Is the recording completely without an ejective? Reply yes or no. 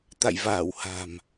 yes